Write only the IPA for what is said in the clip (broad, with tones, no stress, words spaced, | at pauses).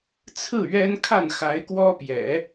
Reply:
t͡sʰɹ̩˥˩ ɥɛ˥n kʰa˥˩nxa˧˥ɪ̯kwɔ˥pjɛ̰˨˩˦